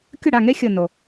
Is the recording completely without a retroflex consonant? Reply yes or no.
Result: no